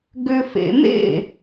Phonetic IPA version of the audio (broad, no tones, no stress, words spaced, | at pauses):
ɡʏfḛmḛ